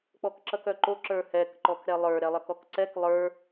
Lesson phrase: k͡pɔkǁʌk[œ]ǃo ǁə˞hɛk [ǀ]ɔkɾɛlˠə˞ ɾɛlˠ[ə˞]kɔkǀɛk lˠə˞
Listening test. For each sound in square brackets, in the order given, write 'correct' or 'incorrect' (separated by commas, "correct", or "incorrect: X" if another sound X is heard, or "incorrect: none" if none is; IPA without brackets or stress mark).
correct, incorrect: ǃ, incorrect: ʌ